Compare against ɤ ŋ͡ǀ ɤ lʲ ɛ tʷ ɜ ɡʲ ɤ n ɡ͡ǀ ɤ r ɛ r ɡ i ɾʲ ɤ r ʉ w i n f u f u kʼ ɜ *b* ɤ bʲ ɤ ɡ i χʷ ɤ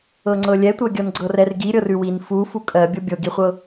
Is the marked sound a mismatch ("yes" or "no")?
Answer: yes